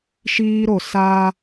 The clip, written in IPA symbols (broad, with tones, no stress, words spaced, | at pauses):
ʃiː˦ɾo˨ sa˦